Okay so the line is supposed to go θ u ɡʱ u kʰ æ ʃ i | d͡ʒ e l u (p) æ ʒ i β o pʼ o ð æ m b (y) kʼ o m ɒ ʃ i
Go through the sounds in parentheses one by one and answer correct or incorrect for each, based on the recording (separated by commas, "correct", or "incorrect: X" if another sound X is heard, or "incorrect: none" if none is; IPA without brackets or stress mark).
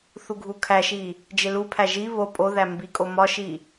incorrect: pʰ, incorrect: i